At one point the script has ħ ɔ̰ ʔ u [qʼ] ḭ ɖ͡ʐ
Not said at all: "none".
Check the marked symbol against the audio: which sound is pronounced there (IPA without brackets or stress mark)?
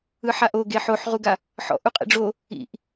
qʼ